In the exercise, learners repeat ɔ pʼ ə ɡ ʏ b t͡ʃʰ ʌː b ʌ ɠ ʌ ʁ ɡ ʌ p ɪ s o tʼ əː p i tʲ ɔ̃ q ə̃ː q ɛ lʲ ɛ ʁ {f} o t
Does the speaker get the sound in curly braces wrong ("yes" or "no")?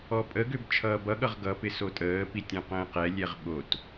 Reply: yes